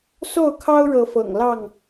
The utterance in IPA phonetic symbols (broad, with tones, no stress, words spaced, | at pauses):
so˥˨ʊ̯kʰɑ˦ʊ̯ɻɤ˨˦fɤ̰˨˩ŋ lɑ˥˨ŋ